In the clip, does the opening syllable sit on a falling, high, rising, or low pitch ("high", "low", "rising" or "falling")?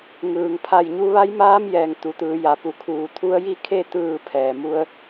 low